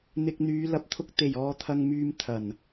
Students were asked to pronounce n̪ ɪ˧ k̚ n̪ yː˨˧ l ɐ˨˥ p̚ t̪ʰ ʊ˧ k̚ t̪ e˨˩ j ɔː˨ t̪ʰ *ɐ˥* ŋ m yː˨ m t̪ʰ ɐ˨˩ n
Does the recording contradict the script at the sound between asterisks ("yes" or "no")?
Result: yes